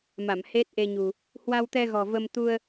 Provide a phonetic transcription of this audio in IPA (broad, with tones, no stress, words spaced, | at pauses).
ma˧˩mhe˦˥t̚ʔe˧ɲṳ˨˩ | hwa˧wt̪ɛ˧ɣɔ̤˨˩ və˧m t̪u˧ə̯